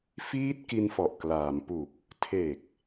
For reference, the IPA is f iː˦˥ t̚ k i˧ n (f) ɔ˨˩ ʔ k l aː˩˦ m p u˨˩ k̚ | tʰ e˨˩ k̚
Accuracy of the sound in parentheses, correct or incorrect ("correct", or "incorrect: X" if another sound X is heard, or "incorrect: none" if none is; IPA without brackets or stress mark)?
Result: correct